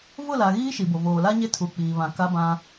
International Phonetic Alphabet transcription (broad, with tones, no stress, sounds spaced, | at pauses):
v ʊ˦˨ l a˨ ɣ iː˦ ʃ i˨ b o˨ v oː˨ l a˦ ɲ e˦ tʰ u˨ k͡p iː˨ β ã˨ k a˦ b ã˦